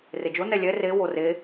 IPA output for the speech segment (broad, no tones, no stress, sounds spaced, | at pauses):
r e d͡ʒ o n ɛ lʲ ɛ r e w o r e